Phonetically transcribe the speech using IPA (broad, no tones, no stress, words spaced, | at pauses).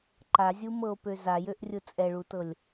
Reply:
ǃazʲumɤo̯pø zajøʔrʲʊ t͡sʼɛɭutɤlʲ